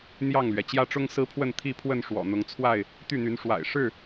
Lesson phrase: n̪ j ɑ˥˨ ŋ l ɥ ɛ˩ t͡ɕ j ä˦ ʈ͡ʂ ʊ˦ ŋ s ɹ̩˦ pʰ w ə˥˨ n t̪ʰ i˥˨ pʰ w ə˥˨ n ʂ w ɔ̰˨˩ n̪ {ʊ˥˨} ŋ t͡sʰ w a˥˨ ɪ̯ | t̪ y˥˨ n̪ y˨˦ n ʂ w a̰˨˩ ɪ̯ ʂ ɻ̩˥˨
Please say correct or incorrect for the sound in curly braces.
incorrect